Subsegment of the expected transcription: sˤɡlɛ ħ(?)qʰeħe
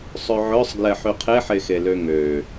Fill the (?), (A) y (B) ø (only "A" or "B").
A